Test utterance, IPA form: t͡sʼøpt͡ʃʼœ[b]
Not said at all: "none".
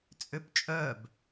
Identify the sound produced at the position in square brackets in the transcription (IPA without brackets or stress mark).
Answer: b